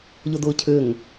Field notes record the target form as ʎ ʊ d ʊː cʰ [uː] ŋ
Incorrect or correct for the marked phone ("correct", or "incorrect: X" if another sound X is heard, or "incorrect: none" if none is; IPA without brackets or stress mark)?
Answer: incorrect: ʏː